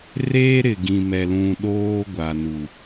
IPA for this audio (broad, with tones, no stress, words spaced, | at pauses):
reː˦ɾɪ˨ɡĩ˨mɛ˨ lũ˨ ɗoː˦ɡʷa˨ nu˨